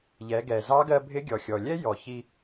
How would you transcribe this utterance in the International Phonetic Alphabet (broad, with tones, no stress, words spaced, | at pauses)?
ʎɛ˩˧ɡɛ˩ zɑ˧˥ɡɜ˧bʱɪ˧˥ ɡʲɔ˩xʲɔ˩lʲɛ˥ jɔ˩çi˧